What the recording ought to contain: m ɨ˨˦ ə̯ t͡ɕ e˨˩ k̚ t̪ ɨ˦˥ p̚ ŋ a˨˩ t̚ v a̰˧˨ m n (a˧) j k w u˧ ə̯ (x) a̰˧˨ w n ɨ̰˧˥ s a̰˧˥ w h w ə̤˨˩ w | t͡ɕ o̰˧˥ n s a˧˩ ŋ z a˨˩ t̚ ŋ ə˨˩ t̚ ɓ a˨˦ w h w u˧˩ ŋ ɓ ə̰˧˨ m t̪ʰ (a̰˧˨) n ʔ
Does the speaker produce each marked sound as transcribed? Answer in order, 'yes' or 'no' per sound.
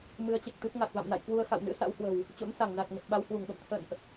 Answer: no, yes, no

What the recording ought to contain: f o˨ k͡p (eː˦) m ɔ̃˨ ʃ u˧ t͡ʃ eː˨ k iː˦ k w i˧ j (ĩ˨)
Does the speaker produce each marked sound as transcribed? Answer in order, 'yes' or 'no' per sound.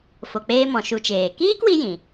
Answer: yes, yes

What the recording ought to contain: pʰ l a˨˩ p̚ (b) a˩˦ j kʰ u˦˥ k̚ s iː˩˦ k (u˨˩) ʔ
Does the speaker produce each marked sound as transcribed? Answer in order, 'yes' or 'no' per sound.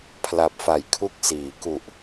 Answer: no, yes

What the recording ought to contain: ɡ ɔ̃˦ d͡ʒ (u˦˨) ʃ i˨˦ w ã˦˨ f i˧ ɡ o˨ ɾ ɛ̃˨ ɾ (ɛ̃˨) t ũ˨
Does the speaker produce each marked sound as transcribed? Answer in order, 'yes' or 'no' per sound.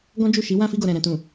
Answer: yes, yes

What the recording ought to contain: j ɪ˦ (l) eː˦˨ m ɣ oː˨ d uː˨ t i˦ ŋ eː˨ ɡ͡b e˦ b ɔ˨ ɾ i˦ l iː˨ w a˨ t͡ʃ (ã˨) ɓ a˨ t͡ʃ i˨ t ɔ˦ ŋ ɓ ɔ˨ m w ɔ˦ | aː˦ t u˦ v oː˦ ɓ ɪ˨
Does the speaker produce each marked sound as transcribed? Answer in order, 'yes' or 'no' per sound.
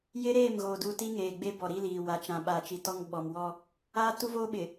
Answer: no, yes

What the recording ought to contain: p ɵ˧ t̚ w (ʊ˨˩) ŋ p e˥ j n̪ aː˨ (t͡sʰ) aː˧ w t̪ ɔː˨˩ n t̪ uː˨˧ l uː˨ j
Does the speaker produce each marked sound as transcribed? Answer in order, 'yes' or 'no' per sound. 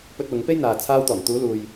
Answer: no, yes

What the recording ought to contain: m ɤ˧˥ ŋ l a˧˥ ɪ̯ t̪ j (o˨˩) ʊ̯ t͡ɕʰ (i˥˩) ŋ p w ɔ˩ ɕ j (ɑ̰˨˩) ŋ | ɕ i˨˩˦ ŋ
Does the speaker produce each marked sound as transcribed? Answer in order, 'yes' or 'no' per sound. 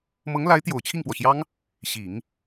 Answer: yes, yes, no

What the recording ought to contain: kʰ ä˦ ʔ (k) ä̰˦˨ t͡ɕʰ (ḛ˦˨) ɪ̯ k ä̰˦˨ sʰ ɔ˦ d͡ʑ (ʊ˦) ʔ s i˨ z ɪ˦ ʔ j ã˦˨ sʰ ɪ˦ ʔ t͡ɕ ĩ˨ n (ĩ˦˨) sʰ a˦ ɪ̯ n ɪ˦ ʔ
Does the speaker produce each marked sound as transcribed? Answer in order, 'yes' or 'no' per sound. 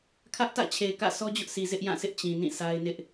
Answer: no, no, yes, yes

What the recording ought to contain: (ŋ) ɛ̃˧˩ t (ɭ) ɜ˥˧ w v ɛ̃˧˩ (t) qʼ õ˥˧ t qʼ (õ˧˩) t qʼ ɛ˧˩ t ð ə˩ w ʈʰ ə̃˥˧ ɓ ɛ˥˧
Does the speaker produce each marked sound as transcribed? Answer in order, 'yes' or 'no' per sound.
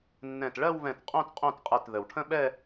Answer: no, yes, yes, no

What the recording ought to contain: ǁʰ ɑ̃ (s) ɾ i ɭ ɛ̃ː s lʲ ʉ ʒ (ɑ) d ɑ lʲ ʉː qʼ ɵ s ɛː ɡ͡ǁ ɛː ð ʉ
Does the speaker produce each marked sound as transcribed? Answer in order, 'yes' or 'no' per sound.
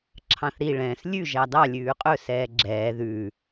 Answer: no, yes

